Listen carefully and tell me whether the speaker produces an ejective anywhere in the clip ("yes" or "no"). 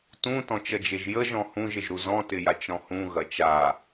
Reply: no